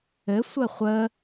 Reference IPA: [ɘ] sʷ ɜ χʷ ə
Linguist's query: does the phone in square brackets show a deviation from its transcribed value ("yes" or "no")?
no